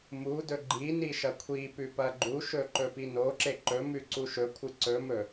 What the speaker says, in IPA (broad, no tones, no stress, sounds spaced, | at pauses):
m u d ɵ ɡ͡ǃ i n i ʃ ɐ kʷʰ i p ʉ p ɐ ɡ͡ǃ u ʃ ɵ ǃ ɵ p i n o ǁ e ǃ ɵ m ʉ ǀ u ʃ ɵ kʷʰ ɨ ǀ ɵ m ɵ